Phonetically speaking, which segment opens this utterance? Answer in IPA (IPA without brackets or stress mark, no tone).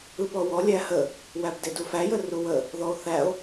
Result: ɯ